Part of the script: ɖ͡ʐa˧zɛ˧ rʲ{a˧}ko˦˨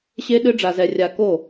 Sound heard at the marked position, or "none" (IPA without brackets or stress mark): a˧